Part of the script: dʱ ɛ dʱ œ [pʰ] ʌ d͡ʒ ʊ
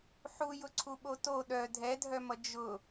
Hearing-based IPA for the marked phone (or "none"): m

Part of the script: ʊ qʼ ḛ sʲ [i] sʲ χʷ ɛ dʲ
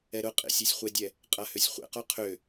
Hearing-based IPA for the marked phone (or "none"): e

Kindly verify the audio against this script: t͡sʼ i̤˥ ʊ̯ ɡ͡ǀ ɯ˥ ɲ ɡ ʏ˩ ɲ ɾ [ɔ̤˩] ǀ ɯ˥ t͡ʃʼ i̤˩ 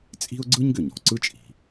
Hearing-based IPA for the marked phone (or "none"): ɔ̤˩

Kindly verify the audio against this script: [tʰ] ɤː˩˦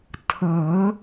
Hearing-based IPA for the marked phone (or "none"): tʰ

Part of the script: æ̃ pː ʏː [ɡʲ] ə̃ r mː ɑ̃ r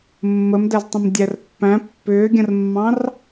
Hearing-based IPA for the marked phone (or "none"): ɡʲ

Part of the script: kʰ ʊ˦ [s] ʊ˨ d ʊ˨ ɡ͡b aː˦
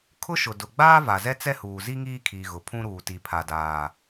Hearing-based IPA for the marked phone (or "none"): ʃ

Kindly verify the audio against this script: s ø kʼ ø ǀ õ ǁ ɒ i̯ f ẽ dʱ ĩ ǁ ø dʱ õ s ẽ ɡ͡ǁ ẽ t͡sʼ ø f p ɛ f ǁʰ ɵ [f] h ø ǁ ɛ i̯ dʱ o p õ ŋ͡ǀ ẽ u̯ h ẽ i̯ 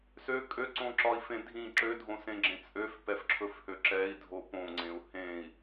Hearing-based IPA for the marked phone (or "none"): f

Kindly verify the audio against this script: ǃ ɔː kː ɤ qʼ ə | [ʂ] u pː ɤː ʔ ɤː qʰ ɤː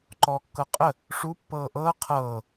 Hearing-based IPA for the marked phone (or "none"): ʂ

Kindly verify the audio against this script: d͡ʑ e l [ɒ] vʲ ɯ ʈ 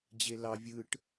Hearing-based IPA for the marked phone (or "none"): ɑ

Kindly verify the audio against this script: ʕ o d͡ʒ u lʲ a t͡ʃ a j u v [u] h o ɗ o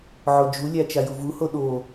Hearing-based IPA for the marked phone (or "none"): u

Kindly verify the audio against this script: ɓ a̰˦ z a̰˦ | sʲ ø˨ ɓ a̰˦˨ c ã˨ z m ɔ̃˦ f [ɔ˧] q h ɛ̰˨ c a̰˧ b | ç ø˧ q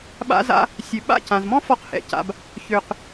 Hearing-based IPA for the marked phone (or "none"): ɔ˧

